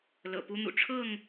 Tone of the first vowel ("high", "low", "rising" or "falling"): low